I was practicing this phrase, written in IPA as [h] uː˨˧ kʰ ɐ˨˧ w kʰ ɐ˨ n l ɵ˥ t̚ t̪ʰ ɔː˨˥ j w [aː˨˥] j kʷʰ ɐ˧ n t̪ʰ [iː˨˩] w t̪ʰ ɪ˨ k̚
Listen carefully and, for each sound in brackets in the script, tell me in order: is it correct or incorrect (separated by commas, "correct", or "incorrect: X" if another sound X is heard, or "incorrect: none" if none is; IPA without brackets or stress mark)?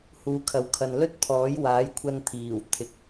correct, correct, correct